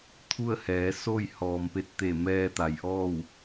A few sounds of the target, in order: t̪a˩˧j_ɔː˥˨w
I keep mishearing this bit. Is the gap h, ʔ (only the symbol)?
ʔ